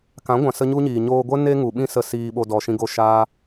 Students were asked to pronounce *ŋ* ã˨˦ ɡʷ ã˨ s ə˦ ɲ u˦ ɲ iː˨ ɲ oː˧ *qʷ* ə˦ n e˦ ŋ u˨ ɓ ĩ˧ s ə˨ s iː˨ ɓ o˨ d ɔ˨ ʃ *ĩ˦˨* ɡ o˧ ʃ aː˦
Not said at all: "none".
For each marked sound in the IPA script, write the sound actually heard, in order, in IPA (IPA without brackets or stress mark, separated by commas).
k, ɡʷ, ĩ˧